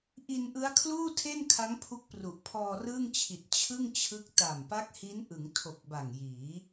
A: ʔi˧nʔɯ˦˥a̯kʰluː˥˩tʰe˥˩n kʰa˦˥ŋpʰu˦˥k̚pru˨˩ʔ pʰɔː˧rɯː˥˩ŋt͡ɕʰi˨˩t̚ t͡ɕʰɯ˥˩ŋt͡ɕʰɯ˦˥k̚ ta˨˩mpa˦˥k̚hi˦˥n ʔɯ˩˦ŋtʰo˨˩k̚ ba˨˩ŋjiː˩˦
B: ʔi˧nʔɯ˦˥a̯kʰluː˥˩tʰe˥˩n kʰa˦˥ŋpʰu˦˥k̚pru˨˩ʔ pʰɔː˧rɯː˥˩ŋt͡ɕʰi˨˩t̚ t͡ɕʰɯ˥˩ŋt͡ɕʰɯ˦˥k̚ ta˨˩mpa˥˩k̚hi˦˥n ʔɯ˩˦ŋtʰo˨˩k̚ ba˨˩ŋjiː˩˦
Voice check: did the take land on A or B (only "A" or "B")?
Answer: A